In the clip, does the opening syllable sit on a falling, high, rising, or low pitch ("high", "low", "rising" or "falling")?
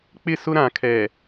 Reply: falling